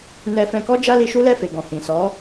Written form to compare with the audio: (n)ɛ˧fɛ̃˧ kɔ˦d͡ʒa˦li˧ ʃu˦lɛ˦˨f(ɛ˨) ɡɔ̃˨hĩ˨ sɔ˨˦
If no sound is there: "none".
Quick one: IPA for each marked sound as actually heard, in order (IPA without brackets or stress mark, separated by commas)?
n, e˨